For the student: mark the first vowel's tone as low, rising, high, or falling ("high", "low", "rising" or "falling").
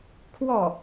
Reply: falling